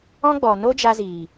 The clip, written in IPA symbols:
ɔ̃˦ ɡ͡b ɔ˨ n o˦ d͡ʒ a˧ z iː˨

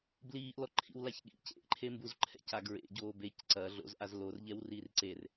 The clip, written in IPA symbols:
b l iː ʔ l ɔ ǃʰ ḭ w l a ç ɠ ḭ c ḛ ʔ ǃʰ e m b u z ǃʰ ɛ̰ c a ɡ ɹ ḛ ɟ oː b e c ǀ ɐ ɮ o̰ z ʔ a z l o r ʎ ɛ w r iː r ǀ e r

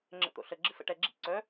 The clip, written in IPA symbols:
ŋ͡ǁ ə̰ t̪ o̰ ɬ ə ɡ͡ǁ ɨ f ə̰ ʈ ɛ ɡ͡ǁ ḭ ǀ œ

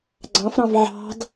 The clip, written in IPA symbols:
ɡ͡ǀ ɑ̃ f ɾ ɑ̃ v ʕ ɑ̤ d

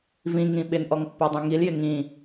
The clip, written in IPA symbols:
v ĩ ŋ ĩ ɓ ɪ n ʔ ɔ ŋ pː a dˤ ɛ̃ ŋ i l j ɪ ŋ ĩ

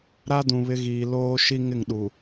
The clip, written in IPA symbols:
ɾ a˦ d ũ˨ β ɪ˦ ɣ iː˨ l oː˦ ʃ i˦ ŋ ɪ˦˨ ŋ ɗ u˨

